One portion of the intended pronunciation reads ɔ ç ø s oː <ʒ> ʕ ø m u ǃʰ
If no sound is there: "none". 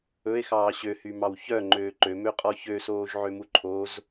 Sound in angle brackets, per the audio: ʒ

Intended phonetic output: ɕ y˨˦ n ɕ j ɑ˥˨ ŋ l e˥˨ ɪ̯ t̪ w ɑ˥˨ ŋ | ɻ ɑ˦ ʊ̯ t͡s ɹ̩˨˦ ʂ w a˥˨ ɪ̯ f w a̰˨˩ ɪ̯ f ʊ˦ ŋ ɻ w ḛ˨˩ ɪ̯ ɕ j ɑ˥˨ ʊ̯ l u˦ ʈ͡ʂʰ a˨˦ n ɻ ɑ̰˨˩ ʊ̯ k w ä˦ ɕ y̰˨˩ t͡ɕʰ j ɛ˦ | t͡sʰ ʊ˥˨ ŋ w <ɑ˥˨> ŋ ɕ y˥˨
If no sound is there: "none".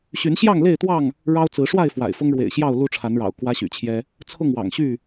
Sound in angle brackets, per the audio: ɑ̰˨˩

